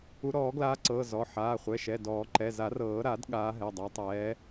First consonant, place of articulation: alveolar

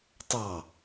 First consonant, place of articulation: alveolar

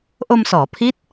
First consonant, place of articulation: glottal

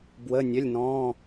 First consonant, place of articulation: labial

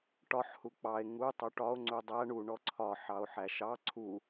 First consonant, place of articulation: retroflex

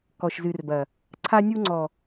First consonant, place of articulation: velar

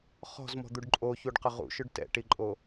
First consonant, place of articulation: uvular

